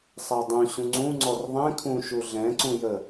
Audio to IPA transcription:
sˤ æ dˤ ũ ɕ ũ ŋ͡ǀ ũ ŋ͡ǀ ɔ r ðˤ ɛ̃ kʰ ũ ʃ u ɮ ɛ̃ ǀ ũ j ə

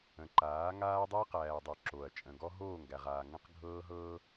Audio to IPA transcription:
ə̃˨ ǃ aː˨˦ ŋ aː˦ dˤ əː˦ q æː˨ dˤ o˨ ǁ o˨ ɐ̯ t͡ʃʼ ə̃˨ ɡ ɔ˦ ɦ oː˦˨ ŋ ɡ æ˨ ʁ aː˨ ŋ ə̃˦ q ɡʱ ɤː˦ ɦ ɤː˦

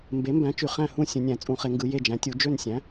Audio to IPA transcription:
m b e˩˥ m b æ̃˩˥ t͡ʃ y˩˧ χ æ̃˦˨ h ũ˦˨ sʲ ũ˩˧ nʲ æ̃˧˩˧ t͡sʼ ũ˧˩˧ χ e˩˧ ŋ ɡ ɯ˩˧ j e˦˨ d͡ʒ æ̃˩˥ tʲ u˩˥ d͡ʒ ø˦˨ n sʲ æ̃˩˥

